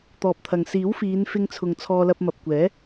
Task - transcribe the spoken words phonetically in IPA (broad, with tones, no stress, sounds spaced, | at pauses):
t̪ ɔː˨ p̚ t̪ʰ ɐ˨ ŋ s iː˨˥ w f iː˨˧ n f ɪ˧ ŋ t͡sʰ ʊ˨ ŋ t͡sʰ ɔː˧ l ɐ˧ p̚ m ɐ˨ p̚ kʷ ɛː˨˥